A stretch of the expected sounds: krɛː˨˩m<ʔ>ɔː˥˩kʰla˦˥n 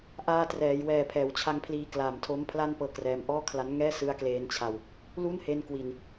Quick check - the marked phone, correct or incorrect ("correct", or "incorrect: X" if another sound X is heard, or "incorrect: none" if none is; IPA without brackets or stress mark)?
correct